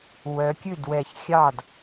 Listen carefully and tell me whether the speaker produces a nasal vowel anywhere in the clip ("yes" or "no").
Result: no